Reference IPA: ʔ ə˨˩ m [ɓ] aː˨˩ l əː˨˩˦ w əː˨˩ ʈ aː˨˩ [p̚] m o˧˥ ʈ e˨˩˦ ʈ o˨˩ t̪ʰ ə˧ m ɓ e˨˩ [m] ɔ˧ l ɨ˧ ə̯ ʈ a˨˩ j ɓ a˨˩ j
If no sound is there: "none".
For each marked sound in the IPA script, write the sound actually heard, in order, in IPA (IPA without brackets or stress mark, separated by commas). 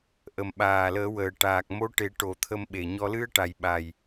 ɓ, k̚, ɲ